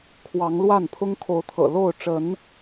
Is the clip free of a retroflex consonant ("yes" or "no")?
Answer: no